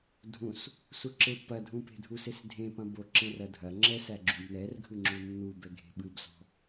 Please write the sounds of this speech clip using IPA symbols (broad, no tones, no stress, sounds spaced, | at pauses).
dʱ ũ s | s u ǁ e pː ɐ dʱ ũ p e̤ dʱ u s e s dʱ ẽ p ɐ̃ b o ǁ ẽ r ɐ dʱ ɐ ŋ͡ǁ ɛ s æ ɡ͡ǁ ũ b n ɛ r ɡʱ ɯ ŋ͡ǁ u nː u b ɛ ɡʱ e̤ ɓ ɯ b s ɔ̤